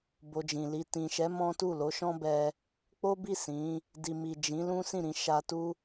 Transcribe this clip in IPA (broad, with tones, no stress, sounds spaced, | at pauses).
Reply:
b o˧ d͡ʒ ĩ˨ l i˧ t ĩ˨ ʃ ɛ˨˦ m ɔ̃˦ t u˦˨ l o˨˦ ʃ ɔ̃˦ b ɛ˧ | k͡p o˦ b i˦˨ s ĩ˨˦ | d i˨ m i˨ d͡ʒ ĩ˨˦ l ũ˦ s ĩ˦˨ ɾ ĩ˧ ʃ a˧ t u˦